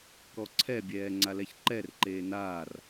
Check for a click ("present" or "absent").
present